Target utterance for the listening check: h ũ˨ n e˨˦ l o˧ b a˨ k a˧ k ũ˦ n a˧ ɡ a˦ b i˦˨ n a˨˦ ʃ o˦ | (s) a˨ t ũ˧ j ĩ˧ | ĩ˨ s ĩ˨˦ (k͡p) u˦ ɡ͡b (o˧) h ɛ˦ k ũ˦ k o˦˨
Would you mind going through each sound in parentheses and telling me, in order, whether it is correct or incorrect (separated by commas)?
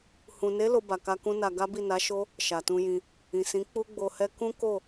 incorrect, correct, correct